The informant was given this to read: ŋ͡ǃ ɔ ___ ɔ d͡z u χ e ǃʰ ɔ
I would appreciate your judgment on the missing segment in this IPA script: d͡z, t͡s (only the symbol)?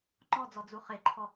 d͡z